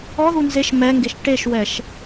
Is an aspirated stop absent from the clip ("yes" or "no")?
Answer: yes